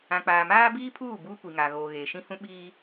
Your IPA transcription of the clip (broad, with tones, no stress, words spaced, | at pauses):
ã˨k͡paː˨maː˦ biː˦pʰuː˦˨ buː˦kʷi˨ŋaː˨ɣoː˨ ɣeː˨ʃĩ˦hũ˦ ɓiː˦